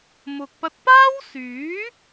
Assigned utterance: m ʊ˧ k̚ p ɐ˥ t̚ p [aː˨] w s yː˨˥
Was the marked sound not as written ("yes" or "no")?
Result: yes